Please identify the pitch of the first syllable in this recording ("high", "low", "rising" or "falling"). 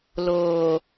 low